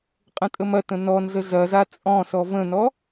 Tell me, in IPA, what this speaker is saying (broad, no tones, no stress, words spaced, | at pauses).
qʼə̃tʼəmɐtə̃ nɔnzə zɐza t͡sʼɔ̃sɔ və̃nɔ